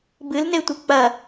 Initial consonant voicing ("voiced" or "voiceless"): voiced